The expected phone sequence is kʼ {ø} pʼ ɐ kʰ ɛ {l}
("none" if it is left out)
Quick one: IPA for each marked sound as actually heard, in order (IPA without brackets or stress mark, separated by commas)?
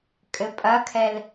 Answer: ɘ, l